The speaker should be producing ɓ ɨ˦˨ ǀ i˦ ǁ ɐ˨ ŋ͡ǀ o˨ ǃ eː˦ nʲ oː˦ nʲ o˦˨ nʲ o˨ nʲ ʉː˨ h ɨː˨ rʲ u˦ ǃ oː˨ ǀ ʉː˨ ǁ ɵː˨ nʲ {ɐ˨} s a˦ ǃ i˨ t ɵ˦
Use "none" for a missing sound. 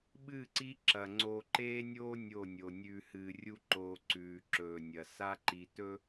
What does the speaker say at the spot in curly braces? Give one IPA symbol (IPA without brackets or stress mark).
ɐ˨